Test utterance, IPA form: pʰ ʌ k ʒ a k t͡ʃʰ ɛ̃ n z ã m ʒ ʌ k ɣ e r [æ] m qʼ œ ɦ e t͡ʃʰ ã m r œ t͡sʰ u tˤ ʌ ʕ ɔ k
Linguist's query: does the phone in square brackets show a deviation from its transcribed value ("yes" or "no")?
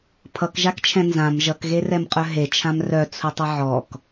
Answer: yes